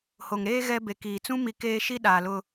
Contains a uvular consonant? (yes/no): no